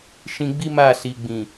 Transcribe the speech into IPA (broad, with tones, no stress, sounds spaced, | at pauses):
ʃ ĩ˧ ɡ͡b i˦ m a˦˨ s i˨ ɡ͡b ĩ˨